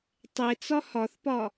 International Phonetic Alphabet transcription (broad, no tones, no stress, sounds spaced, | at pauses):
tˤ e t͡s ɒ h ɒ θ p ɒ